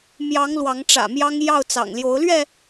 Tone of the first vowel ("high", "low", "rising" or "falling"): rising